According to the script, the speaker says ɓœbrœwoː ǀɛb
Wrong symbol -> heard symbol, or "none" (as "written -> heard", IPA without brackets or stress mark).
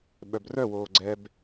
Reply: ǀ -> ɡ͡ǀ